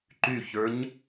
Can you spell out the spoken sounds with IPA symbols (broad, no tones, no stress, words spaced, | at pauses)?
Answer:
ǃyçə˞ɲ